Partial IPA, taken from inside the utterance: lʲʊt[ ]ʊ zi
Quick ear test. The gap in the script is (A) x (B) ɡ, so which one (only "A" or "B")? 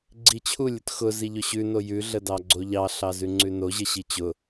A